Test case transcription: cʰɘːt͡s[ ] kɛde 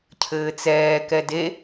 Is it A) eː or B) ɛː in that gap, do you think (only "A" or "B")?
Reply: B